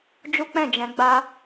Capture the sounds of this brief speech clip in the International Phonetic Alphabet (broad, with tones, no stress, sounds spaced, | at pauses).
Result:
d͡ʒ u˦ k͡p ɛ̃˦˨ d͡ʒ ɛ̃˧ ɡ͡b a˧